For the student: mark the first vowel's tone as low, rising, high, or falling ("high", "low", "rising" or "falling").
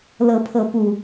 rising